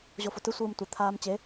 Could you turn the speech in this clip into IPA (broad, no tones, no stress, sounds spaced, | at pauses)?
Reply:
ʑ o f o t ɯ sʷ ɯː m tʷ e t̪ʰ aː m t͡ɕ e